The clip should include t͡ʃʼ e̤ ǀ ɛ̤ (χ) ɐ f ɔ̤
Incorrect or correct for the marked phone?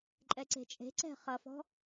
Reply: correct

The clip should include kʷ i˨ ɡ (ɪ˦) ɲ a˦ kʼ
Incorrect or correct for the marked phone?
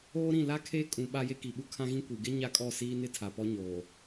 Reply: correct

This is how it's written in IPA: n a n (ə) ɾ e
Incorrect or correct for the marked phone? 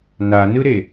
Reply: incorrect: ɯ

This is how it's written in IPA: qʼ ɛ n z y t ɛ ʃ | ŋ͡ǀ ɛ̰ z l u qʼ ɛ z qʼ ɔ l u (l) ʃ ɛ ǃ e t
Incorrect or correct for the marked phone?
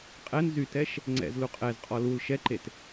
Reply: correct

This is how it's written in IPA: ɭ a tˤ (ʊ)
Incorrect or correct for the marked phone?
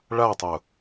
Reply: correct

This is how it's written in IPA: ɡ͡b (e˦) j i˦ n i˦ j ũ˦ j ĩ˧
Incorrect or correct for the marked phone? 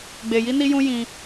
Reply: incorrect: e˧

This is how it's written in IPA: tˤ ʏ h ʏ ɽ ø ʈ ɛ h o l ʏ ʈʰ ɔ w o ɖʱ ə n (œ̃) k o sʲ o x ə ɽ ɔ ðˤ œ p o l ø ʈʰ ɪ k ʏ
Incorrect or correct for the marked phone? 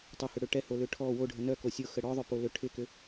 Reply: incorrect: œ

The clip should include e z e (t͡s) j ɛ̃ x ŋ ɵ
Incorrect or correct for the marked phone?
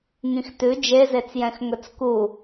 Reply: correct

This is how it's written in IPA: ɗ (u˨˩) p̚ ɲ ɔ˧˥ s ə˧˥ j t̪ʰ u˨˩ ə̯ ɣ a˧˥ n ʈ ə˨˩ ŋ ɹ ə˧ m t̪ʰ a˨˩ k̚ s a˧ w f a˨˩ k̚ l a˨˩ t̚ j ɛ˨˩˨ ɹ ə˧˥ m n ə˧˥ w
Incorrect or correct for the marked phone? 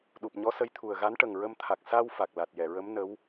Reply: correct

